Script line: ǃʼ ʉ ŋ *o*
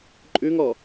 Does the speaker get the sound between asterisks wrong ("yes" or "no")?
yes